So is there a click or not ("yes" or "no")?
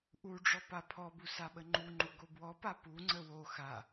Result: yes